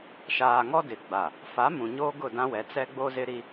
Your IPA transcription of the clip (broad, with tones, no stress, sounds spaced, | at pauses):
ʃ aː˨ ŋ ɔ˦ d ɪ˨ ɡ͡b a˨ | f a˨˦ m ũ˨ ɲ oː˦ ɡ ʊ˦˨ d ã˦ w ɛ˨˦ t͡s ɛ˦ ɡ͡b o˦ z ɪ˦ ɾ i˦